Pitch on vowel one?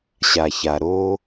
low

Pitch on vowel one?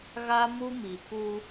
high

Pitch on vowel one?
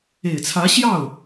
low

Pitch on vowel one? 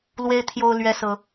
high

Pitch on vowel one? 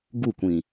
falling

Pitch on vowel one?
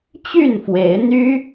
falling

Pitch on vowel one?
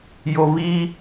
low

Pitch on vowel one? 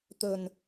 low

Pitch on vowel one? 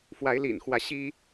rising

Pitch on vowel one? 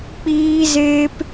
high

